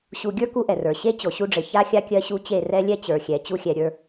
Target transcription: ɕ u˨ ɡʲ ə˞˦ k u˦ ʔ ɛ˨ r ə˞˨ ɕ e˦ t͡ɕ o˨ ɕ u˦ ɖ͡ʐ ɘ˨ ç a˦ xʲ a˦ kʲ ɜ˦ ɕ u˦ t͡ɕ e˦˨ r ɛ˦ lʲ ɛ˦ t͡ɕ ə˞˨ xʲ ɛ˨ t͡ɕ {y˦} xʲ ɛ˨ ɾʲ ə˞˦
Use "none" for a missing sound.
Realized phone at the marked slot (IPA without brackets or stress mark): u˦